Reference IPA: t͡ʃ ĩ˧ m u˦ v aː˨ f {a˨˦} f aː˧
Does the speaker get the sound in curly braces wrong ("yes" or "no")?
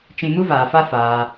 yes